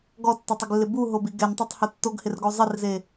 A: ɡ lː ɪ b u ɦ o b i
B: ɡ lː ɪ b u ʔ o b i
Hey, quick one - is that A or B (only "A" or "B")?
A